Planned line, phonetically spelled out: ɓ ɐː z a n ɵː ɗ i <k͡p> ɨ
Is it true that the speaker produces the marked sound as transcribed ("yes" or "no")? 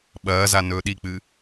yes